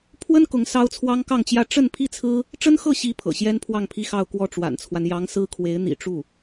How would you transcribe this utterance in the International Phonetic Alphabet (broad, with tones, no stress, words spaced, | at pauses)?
pʰwə˥n kʊ˧˥ŋ sɑ˥ʊ̯t͡sʰwɑ˥ŋkɑ˥˧ŋt͡ɕjä˥˧ ʈ͡ʂə˥˧n pʰi˥˩t͡sʰɹ̩˥ | ʈ͡ʂə˥nxɤ˥˩ɕi˧˥ pʰɤ̰˨˩ ɕjɛ˥npʰwɑ˥˩ŋpʰi˥xɑ˥˧ʊ̯ kwɔ˥˩ʈ͡ʂwa̰˨˩nt͡sʰwa˦n jɑ˧˥ŋsɹ̩˥kʰwe˧˥ɪ̯ n̪ḭ˨˩ʈ͡ʂu˥˩